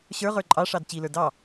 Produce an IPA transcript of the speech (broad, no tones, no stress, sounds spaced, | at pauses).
ɕ ə˞ ʁ ə˞ ǃʼ ɑ ʂ ɑ d t͡ɕ i l ə˞ d ɑ